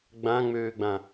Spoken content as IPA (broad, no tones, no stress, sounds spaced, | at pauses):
ɡ͡b ã ŋ͡m øː ɡ͡b ã